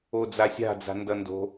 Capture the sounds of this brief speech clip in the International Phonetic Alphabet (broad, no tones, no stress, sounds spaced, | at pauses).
o d͡z a sʲ a̤ d͡z a̤ n d ʌ n d o̤